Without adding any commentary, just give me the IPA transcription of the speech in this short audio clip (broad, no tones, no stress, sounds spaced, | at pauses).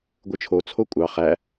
ɡʷ ɯ t͡ʃʰ o t͡sʰ o kʷʼ ɑ χ æ